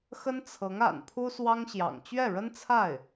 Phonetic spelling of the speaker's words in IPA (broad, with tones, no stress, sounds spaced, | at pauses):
x ə˥ n t͡sʰ ɤ˧˥ ŋ a̰˨˩ n pʰ u˥ s w ɑ˥ ŋ ɕ j ɑ̰˨˩ ŋ t͡ɕ ɥ ɛ˥˩ ɻ ə˥ n t͡sʰ a˥˩ ɪ̯